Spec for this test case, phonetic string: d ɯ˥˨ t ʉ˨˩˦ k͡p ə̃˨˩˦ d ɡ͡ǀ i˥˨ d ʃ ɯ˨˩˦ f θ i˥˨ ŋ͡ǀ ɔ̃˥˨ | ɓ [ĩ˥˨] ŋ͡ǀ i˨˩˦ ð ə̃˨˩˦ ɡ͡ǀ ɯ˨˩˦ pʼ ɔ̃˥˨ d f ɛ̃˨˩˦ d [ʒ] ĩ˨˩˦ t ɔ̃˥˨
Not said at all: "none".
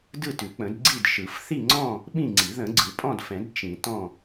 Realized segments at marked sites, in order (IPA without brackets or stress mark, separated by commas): ĩ˥˨, t͡ʃ